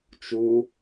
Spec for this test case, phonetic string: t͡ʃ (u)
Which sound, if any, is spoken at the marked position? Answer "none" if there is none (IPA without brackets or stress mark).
u